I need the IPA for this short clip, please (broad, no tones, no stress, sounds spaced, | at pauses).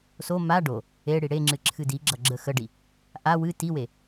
s o m a ɖ o | e ɽ i ɽ e ŋ͡ǁ ɨ ǁʰ ɨ d i ɡ͡ǁ ʌ ɡ͡ǁ ə x ə ɖ i | ʔ a w ɨ t i w e